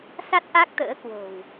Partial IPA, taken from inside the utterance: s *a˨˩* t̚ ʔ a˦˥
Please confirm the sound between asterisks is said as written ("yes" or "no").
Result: no